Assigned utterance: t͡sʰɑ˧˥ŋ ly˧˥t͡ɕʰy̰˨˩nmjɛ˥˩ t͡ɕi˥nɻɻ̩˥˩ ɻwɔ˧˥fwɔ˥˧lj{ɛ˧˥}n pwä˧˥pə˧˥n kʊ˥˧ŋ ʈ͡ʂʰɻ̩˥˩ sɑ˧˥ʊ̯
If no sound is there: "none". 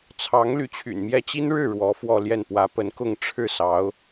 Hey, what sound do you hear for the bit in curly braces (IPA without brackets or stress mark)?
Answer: ɛ˥˩